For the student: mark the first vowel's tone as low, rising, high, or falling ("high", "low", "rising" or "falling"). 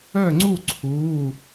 falling